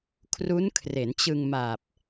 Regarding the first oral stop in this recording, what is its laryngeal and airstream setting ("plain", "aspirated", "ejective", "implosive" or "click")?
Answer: aspirated